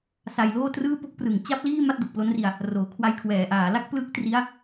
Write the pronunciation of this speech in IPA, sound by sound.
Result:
s a˧ j l oː˥˩ t r ɯː˥˩ p o˥˩ k̚ p r ɯ˨˩ ŋ t͡ɕ a˥˩ p̚ l iː˥˩ m a˥˩ t̚ d o˨˩ k̚ p l o˦˥ n r i˧ a̯ | r oː˩˦ kʰ w a˧ j kʰ w ɛː˩˦ ʔ aː˩˦ l a˥˩ k̚ p l ɯ˦˥ k̚ t r i˦˥ a̯

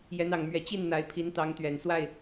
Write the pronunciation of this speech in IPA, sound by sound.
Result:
j ɛ˨˦ n ɑ˨˩ ŋ m ɥ ɛ˨˦ t͡ɕ i˥˨ n n̪ a˨˦ ɪ̯ pʰ i˨˦ n t̪ ɑ˨˦ ŋ t̪ ɥ ɛ˨˩ n s w a˥˨ ɪ̯

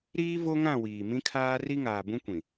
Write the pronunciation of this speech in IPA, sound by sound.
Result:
ɾ iː˦ v o˦ ŋ ã˦˨ w iː˨ m ĩ˦ kʰ aː˦ r i˦ ŋ aː˨ b ũ˦ kʷ ĩ˨

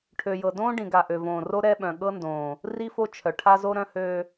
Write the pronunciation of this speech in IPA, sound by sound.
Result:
ʈʰ ø˨ j ɤ˨ d õː˦ ɖ ĩ˨ ɡ a˨ ʔ ø˨ v õː˨ r o˦ ɾ ɛ˦ ɓ œ̃˨ ɠ ɤ˦ n d õː˨ | r i˦ f o˦ t͡ʃʰ œ˨ ʈʰ a˦ z o˦ ɾ œ̃˦ h øː˦

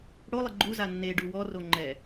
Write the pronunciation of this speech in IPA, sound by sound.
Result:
ɽ o lˠ ɪ ɡ͡ǃ u z a nː e ɖ u w ɔ r o ŋ͡ǃ ɛ

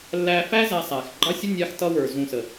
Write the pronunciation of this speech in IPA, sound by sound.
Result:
lː æː˧ f æ˦ z æ˧ sˤ æː˨ x ɡ͡ǃ ɑ˦ sʲ ə˦ nʲ ɑ˧ x t ʌ˦ w ə˞˨ z ũ˨ s ə˨

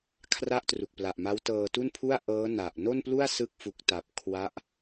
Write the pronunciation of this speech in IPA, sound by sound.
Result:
kʰ r a˥˩ ʔ t r u˨˩ k̚ p l a˨˩ ʔ m a˦˥ w t ɤː˧ t u˥˩ n pʰ u˥˩ a̯ ʔ ɤː˦˥ n a˨˩ ʔ n o˥˩ n p l u˥˩ a̯ s ɯ˦˥ k̚ f u˨˩ k̚ t a˨˩ p̚ kʰ w a˦˥ ʔ

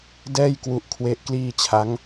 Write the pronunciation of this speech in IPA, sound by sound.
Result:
d ɛː˥˩ j k w u˦˥ ʔ kʰ w e˦˥ ʔ k l iː˥˩ t͡ɕʰ a˦˥ ŋ

